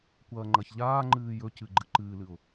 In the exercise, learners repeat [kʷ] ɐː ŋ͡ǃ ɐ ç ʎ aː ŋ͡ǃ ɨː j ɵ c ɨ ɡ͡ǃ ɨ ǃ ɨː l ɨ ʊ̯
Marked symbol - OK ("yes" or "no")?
yes